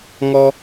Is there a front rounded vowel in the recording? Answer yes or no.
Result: no